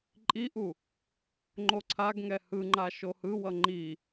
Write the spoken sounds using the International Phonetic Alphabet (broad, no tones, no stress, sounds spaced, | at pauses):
ǃʼ i ʔ u | ŋ͡ǃ o ǀʰ a ɡ ŋ ɛ h ɯ ŋ͡ǃ a ʃ o h ɯ w ʌ ŋ͡ǃ i